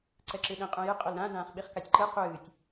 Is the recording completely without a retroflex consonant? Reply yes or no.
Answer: yes